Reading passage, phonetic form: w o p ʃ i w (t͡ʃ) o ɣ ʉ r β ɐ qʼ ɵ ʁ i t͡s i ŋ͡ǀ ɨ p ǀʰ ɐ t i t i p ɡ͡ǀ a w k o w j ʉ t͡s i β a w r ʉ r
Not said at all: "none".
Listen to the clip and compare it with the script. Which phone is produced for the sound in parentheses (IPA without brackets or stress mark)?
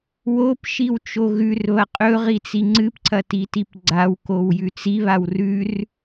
t͡ʃ